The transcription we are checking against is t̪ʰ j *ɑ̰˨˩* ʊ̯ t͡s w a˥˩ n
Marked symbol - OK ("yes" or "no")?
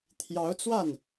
no